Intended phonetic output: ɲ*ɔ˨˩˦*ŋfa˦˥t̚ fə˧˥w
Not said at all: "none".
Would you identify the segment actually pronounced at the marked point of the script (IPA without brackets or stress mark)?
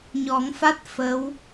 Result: ɔ˨˩˦